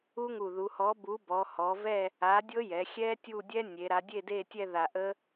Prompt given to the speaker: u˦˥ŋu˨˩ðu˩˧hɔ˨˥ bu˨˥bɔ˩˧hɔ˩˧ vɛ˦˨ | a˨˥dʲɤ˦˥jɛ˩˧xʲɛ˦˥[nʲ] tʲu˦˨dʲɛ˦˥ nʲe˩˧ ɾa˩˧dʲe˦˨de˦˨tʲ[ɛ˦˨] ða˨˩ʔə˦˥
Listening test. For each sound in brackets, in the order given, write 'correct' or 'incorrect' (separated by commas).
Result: incorrect, correct